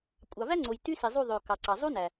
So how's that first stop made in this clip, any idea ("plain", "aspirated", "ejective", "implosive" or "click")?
ejective